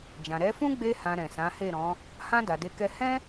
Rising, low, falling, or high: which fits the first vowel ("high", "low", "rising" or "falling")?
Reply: low